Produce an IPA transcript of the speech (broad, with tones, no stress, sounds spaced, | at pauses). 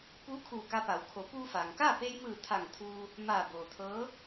p uː˧˥ kʰ uː˧˩ k a˧ p a˩˧ w kʰ o˩˧ p uː˧ f aː˩ ŋ k aː˥˨ p e˧ j m ɯː˧˩ t̪ʰ a˧˩ ŋ t̪ʰ uː˧ | m aː˧˩ b oː˩ t̪ʰ ɤː˧˥